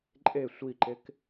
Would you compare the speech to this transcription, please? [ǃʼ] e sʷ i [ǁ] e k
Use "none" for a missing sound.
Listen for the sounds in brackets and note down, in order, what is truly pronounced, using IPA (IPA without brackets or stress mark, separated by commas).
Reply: ǃʼ, ǃ